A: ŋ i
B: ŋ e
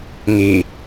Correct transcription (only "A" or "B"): A